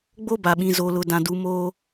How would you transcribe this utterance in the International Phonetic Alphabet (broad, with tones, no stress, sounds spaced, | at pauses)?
ɡ͡b o˦ b a˨ ɓ ĩ˨ z o˨ l ʊ˨ d ã˨ d u˨˦ m oː˦